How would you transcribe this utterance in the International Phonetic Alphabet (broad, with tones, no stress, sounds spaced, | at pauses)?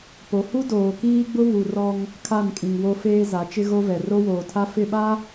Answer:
p o˨ h u˦ d oː˨ k iː˦ ɡ͡b ʊ˦ β u˨ r ɔ˦ ŋ | kʰ a˦˨ n kʼ ĩ˨ ŋ w o˦ f eː˦ z a˨˦ t͡ʃ ɪ˦ ɣ o˦ v ɛ˨ r o˦ w oː˨ tʰ a˦ f ɪ˦˨ ɓ a˦